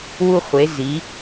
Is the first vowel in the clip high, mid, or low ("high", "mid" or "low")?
high